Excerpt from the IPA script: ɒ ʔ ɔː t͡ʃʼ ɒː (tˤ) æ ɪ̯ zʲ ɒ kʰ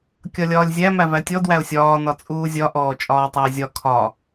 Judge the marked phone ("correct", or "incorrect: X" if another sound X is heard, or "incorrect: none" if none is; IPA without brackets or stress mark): correct